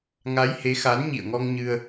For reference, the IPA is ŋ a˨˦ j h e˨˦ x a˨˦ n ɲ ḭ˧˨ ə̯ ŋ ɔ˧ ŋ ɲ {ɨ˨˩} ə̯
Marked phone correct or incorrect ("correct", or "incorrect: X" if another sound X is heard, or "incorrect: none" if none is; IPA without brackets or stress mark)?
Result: incorrect: ɨ˧